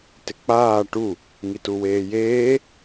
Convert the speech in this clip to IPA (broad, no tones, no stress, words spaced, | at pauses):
tɪk͡paː ʈu | ŋituweːjeː